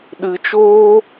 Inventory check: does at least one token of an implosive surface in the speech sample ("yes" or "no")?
yes